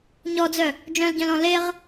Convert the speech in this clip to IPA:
ɲ ɔ d͡z œ | d͡ʒ œ̃ l ɟ œ̃ l ɔ̃ l e ʁ

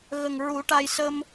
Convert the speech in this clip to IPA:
ɣ ə˨˩ ŋ ɹ u˨˩˦ ʈ a˧ j s ə˧ m

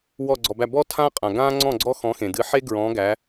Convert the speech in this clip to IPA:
w ɔ˧˩ ɡ͡ǀ ɔ˩ b æ˧˩ b ɔ˥ tʰ ã˥ qʼ ã˩ ɡ ã˥ ŋ͡ǀ ɔ̃˥˨ ɡ͡ǀ ɔ˥ x ɔ̃˨˦ x ẽ˩ d ɨ˨˦ ħ e˥ ɡ ɹ ɔ̃˨˦ ɡ æ˨˦

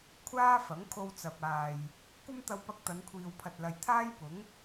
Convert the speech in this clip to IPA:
kʷʰ aː˥ f ɐ˨˥ ŋ kʰ o˧ w t͡s ɐ˨ p̚ aː˨ j | kʷ ɐ˥ m t̪ ɐ˧ w p ɐ˧ k̚ t̪ ɐ˨˧ n kʷʰ iː˨ w pʰ ɐ˨ t̚ l ɐ˨ j t̪ʰ aː˥ j p ʊ˨˥ ŋ

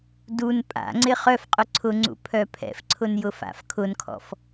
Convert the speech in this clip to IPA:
d u n pʼ a̰ ŋ͡ǀ ɪ χ œ f qʼ ʊ ǀʰ ʊ ŋ͡ǀ ṵ pʰ œ pʰ ɛ̰ f ǀʰ ʊ n j ʊ f a̰ f kʰ ʊ n kʰ ɔ̰ f

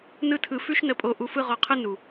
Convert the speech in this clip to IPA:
n ɯ˦ tʰ ɯ˧ f ʉ˦ ʃ n ə˧ pʼ o˧ ʔ u˧ f ɯ˦ ʁ ɔ˧ qʰ ɯ˦ n u˨

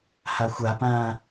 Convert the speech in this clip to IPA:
h a xʷ a p ãː

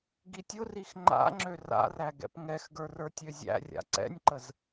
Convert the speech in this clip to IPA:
ɡ i tʲ ʊ r i x ŋ͡ǃ a̰ ŋ͡ǁ ø r a̰ r æ ɡ ɛ̰ p ŋ ɛ x ɡ ə˞ r ə˞ tʲ ø zʲ æ̰ rʲ a̰ ǀ ɛ̰ nʲ ǃ ə z

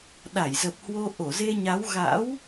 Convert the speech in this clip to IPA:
ɗ a˧˩ j z ə˨˩ p̚ h w o˧ ʔ o˧˩ z e˧ ɲ a˨˦ w ɣ a̰˧˥ w

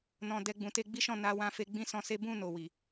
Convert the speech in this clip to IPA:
n ɔ̃˨ d ɛ˧ ɡ͡b ũ˨ t e˧ ɡ͡b i˦ ʃ ɔ̃˦˨ n a˨˦ w ã˦ f e˦ ɡ͡b ĩ˦ s ɔ̃˧ s e˦ b ũ˦˨ n o˨ w i˨

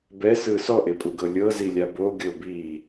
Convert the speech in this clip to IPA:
b ɛ s ɯ s ɔ ʔ e pʼ u ɡ ɤ lʲ ɤ z i lʲ a b o ɡʲ o b iː

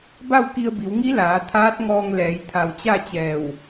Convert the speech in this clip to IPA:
b a˥˨ w k i˧ ə̯ b i˩˧ w ŋ i˧˥ l aː˩˧ t̪ʰ aː˧˥ t̚ ŋ ɔː˧ ŋ l ɛː˩˧ j t̪ʰ a˧˩ w t͡ɕ a˥˨ t͡ɕ ɛː˧˩ w

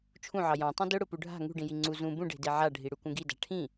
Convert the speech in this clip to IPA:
t͡ʃʰ ũ ʕ ɑ j ɑ̃ tˤ ĩ d ʊ ɽ ʊ p u ɖʱ a̤ ŋ ṳ ɖ ĩ j i ŋ͡ǀ u z ũ b ũ ɖ e̤ d e ʕ a ɖʱ i ɽ u k ũ ɡ i d a̤ ʈʰ ĩ

